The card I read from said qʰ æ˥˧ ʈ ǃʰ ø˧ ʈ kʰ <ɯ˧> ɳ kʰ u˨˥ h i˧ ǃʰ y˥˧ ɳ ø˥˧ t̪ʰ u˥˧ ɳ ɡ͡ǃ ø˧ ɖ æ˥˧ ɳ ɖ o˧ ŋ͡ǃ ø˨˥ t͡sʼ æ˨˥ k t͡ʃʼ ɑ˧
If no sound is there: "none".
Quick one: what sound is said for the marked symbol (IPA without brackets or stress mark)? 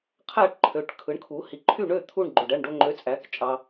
ɯ˨˥